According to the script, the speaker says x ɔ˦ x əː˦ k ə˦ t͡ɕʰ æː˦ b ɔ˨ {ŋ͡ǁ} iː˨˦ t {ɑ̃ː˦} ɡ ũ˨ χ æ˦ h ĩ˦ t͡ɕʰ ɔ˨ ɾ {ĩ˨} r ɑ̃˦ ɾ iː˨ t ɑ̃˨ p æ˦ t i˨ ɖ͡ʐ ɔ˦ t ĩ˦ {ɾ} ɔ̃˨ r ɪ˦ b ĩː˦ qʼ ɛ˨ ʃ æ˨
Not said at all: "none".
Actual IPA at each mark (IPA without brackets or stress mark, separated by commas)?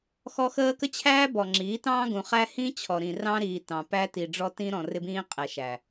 ŋ͡ǁ, ɑ̃ː˦, ĩ˨, ɾ